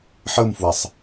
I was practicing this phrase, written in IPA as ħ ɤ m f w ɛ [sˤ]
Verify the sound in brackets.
correct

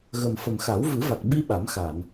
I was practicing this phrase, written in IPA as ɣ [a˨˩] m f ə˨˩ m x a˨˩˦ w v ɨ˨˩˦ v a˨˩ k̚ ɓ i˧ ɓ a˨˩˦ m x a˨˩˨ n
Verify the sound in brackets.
incorrect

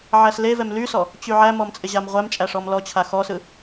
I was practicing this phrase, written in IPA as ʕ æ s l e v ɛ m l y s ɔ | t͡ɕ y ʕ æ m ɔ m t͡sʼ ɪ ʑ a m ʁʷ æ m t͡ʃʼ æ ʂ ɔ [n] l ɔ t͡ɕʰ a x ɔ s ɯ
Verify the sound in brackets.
incorrect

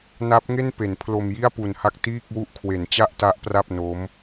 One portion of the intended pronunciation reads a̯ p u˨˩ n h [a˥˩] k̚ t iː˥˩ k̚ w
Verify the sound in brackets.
correct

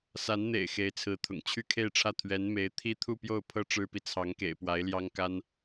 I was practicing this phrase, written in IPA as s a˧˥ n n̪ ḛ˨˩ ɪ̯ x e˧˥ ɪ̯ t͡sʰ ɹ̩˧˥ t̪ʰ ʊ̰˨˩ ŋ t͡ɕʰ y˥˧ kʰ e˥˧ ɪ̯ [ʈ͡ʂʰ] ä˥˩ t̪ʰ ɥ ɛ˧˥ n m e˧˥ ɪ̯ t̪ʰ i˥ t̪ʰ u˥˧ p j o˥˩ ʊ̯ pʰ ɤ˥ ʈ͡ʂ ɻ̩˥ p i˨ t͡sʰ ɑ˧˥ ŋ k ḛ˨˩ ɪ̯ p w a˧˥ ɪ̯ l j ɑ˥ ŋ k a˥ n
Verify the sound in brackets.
correct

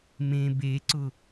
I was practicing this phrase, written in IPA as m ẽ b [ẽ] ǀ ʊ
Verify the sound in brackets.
incorrect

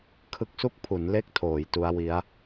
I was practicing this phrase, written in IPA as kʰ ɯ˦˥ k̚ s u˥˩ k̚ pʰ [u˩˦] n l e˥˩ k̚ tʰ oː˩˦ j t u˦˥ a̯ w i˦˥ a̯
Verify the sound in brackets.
correct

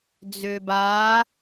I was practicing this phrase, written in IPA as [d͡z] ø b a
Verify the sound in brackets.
correct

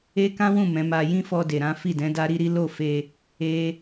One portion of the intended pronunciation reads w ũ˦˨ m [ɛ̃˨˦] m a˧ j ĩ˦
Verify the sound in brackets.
correct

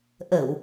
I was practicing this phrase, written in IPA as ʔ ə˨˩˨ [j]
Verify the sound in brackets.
incorrect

